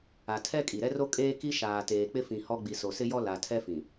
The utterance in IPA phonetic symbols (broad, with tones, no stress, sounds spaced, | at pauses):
a˨ tʰ ɛ˦ kʼ i˨ ɾ ɛ˦ r o˦ kʼ eː˦ k i˦ ʃ aː˨ t eː˨ k͡p ɪ˦ f ĩ˨ h ɔ˦ ɡ͡b i˨ s o˨ s ɪ˦ j ɔ˦ l a˨ tʰ ɛ˦ f ĩ˨